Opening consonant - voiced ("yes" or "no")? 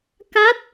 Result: no